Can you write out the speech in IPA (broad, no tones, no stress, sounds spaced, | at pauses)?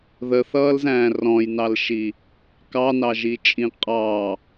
ð ə θ ʌː l z æ̃ː r ɔ̃ j n ɑ l ʃ i | k ɑ n ɑ ʒ i t͡ʃʼ ĩ qʼ ɑ